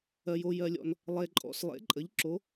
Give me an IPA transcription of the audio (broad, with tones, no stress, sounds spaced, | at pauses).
ɜ˨ j o˨ j ɜ˨ lʲ ɔ̰˨ n | lˠ e˨ ǃʼ ɔ̰˨ s lˠ ḛ˨˦ ǃʼ ə˨˦ ʎ ǁ o˨˦